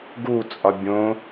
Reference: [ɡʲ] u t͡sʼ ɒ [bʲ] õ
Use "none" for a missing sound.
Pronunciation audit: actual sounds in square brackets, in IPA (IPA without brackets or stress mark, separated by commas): ɡ, bʲ